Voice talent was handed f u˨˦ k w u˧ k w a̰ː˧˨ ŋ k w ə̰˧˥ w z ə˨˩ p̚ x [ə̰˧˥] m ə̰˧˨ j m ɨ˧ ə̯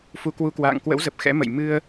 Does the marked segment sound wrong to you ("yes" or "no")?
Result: yes